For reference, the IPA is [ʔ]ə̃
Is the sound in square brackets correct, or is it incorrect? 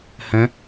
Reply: incorrect